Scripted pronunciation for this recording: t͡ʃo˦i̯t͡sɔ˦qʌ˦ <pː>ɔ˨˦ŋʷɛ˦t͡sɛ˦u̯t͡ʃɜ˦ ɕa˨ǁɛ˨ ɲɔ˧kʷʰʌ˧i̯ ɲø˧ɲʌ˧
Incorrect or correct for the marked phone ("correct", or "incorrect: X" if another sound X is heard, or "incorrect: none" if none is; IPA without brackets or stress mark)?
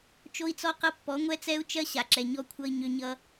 correct